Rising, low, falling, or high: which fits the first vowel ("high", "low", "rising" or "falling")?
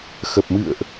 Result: low